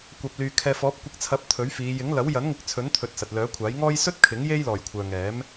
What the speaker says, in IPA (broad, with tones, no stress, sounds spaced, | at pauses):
kʷ ɐ˨ p̚ l yː˨ kʰ ɛː˨ f ɔː˨˥ p̚ kʷ ɪ˨˥ k̚ t͡sʰ ɐ˨˥ p̚ t̪ʰ ɵ˨˥ ɥ f iː˨˧ j ɪ˨˥ ŋ l ɐ˨˥ w j ɐ˨˥ n ŋ ɪ˨˥ k̚ t͡sʰ ɵ˨˥ n t̪ʰ ɵ˨ t̚ s ɐ˨ t̚ l œː˨˥ kʷʰ aː˨˥ j ŋ ɔː˥ j s ɵ˥ t̚ kʰ ɪ˨˥ ŋ j e˥ j l ɔː˨˩ j kʷʰ œː˨ ŋ ɛː˨˥ m